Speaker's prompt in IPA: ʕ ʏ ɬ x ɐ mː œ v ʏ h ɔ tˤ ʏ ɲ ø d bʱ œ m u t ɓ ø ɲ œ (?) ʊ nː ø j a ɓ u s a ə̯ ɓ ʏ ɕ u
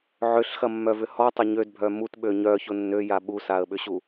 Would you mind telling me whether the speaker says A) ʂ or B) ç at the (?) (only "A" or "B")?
B